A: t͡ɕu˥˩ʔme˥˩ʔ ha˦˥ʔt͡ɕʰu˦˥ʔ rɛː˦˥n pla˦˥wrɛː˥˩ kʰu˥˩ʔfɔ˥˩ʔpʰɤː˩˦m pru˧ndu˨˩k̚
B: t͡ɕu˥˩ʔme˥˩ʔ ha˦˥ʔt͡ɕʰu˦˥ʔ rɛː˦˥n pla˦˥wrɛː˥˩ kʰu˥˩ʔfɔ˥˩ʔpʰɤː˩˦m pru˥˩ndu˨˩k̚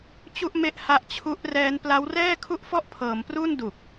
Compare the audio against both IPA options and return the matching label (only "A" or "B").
B